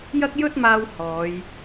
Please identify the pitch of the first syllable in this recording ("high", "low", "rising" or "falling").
high